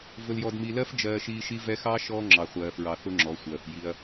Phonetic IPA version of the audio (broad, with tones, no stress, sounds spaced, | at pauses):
v ʊ˨ l j ɔ˨ d m i˨ l ɜ˦ f d͡ʒ ɜː˨ ʃ iː˨ ʃ i˦ v ɛ˦ x ɑː˦ ʃ ɔː˦ ŋ͡ǁ ɑ˨ χʷ ɜː˨ f ɹ ɑ˨ θ ʊ˦ ŋ͡ǁ ɔ˨˦ sʷ ɜː˨ f j i˦ ɐ̯